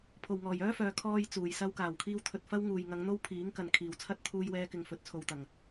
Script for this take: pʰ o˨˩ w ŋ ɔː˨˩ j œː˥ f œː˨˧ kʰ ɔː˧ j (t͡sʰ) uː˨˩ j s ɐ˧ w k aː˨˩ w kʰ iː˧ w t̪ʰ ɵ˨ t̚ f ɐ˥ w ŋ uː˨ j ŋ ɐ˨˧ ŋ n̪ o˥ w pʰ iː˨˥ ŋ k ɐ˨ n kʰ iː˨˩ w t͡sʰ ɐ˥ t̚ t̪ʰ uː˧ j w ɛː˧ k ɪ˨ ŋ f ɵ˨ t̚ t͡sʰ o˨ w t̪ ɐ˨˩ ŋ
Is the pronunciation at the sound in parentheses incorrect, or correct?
incorrect